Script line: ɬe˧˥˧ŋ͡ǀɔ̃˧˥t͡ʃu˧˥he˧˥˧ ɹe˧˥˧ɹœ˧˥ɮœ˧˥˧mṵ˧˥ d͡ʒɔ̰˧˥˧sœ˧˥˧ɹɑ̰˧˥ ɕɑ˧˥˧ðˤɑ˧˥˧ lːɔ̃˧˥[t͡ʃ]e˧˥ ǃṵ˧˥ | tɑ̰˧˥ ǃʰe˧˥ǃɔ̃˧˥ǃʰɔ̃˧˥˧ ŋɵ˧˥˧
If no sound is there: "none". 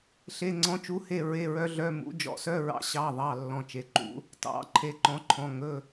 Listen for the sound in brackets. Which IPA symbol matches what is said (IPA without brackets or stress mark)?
t͡ʃ